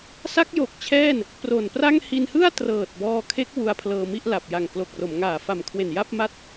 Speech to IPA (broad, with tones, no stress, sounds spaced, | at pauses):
s a˦˥ k̚ j o˨˩ k̚ t͡ɕʰ ɛː˥˩ n | p r o˨˩ n p r a˥˩ ŋ h i˧ n h ɯ˥˩ a̯ t r ɤː˨˩ t̚ b ɔː˧ kʰ e˦˥ k̚ w u˧ a̯ pʰ l ɤː˧ m i˥˩ ʔ l a˨˩ p̚ j a˨˩ ŋ k l o˨˩ k̚ r o˩˦ m ŋ aː˨˩ f a˨˩ m kʰ w e˨˩ n j a˥˩ p̚ m a˥˩ t̚